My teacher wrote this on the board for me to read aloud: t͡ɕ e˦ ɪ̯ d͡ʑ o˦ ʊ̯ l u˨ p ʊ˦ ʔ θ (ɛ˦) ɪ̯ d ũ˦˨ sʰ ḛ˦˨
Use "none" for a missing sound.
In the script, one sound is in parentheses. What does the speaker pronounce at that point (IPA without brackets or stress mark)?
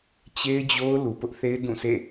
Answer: e˦